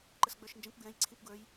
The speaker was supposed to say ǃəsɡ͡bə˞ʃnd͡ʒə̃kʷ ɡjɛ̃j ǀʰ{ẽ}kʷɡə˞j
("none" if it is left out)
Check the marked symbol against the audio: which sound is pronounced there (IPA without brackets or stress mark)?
ẽ